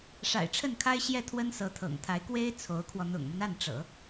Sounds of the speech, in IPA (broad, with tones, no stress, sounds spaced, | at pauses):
ʂ a̰˨˩ ɪ̯ ʈ͡ʂʰ ə˥˩ n kʰ a˥ ɪ̯ ɕ j ɛ˥˩ t̪ʰ w ə˥ n s ɤ˧˥ t̪ʰ ɤ̰˨˩ ŋ t̪ʰ a˧˥ ɪ̯ k w e˥ ɪ̯ t͡sʰ o˧˥ ʊ̯ kʰ w ɔ˧ n̪ ʊ̰˨˩ ŋ m ə˦ n a˥˩ n ʈ͡ʂ ɤ̰˨˩˦